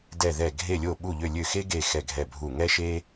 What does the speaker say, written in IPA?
dɛ˧˩ðɛ˧˩ ɡʱe˧˩lʲo˧˩ɓu˧˩ ʎø˧˩lʲø˧˩xe˦ɡe˧˩ xɛ˧˩ɡʱɛ˧˩bʱu˧˩ ŋɛ˦ʃe˦

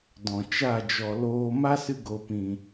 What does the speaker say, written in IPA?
dɔ̃˨t͡ʃa˦˨ d͡ʒɔ˨loː˧ ma˦sɨ˧ɡo˨pĩ˨

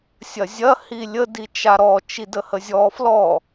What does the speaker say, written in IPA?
sʲɐzʲɐ hilʲə dit͡ʃaɾɔ t͡ʃidəhəzʲɔ flɔ

